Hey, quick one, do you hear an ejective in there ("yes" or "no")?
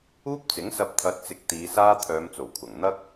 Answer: no